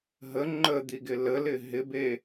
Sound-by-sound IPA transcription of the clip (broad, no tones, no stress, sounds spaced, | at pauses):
ɦ ə ŋ͡ǃ ə d̪ i ɡ ɪ l ə l ɪ ɦ ɪ b e